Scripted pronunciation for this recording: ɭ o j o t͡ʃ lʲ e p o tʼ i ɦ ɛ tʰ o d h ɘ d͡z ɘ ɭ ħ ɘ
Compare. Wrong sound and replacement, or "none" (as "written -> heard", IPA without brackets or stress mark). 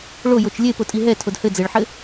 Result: none